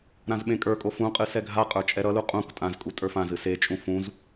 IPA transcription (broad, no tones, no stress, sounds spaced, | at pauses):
ɾ ã z ɓ ẽ kʼ ə˞ kʼ o f ũ qʼ ɨ s ɛ ɡʱ a qʼ ə˞ t͡ʃʼ ɛ ɾ ʌ l u qʼ ũ k tʼ ã z kʼ u tʼ ə˞ f ã z ɨ s e t͡ʃʼ ũ f ũ z